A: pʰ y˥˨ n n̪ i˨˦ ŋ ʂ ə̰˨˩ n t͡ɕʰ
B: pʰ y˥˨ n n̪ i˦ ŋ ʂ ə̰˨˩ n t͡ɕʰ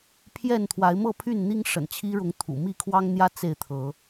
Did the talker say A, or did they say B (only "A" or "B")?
B